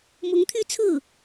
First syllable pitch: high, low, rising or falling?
rising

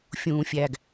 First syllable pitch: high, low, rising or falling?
low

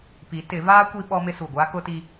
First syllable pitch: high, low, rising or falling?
rising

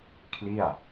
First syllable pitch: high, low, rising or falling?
falling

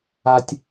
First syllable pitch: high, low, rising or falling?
low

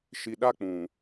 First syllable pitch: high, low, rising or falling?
low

